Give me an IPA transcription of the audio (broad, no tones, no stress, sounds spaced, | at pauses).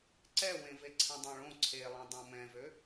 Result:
ǀ ɛ w ẽ v e ǀʰ ã dˤ õ ɭ õ ǀʰ e lˠ ɛ̃ dˤ ã m ɛ̃ v ø